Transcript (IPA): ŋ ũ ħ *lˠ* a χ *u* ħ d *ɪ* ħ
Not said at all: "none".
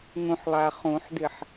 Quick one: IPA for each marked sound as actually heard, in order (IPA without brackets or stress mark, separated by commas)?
lˠ, ũ, ɪ